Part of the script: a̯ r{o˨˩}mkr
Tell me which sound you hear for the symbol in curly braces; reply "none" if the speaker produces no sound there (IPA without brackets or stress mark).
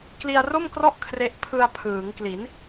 o˥˩